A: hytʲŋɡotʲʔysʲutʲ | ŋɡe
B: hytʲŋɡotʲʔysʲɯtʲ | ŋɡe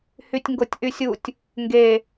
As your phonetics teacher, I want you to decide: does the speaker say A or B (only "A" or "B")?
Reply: A